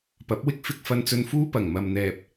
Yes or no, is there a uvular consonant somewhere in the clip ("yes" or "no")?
no